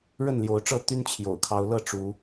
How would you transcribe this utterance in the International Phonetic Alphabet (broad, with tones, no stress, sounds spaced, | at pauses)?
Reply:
ɻ ə˥˨ n l j o˨˦ ʊ̯ ʈ͡ʂ ɤ˥˨ t̪ y˦ n t͡ɕʰ j o̰˨˩ ʊ̯ kʰ ɑ˨˦ ʊ̯ l ɤ˥˨ ʈ͡ʂ u˨˦